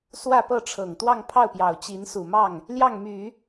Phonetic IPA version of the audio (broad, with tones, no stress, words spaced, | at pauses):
swä˥˧pɤ˥˩ʈ͡ʂʰɤ˨˩ŋ t̪wɑ˥˧ŋpʰɑ˥˩ʊ̯pjɑ˨˩ʊ̯ t͡ɕi˧˥nsu˨˩mɑ˥˩ŋ | ljɑ˥˩ŋmy˨˩˦